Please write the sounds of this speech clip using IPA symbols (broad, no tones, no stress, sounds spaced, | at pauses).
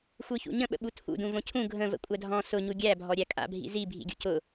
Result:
xʷ ɯ ç ṵ ɲ ə̃ ɓ ə̰ ɓ u tʰ ṵ d ũ v õ cʰ ũ ɡʱ ə̃ v ə̰ kʷʼ æ dʱ ɔ̃ s ʊ ɲ u ɡʲ æ bʱ ɔ ɾʲ æ kʼ a̰ bʱ ḭ z i bʱ ḭ ɡʲ ṵ c ʊ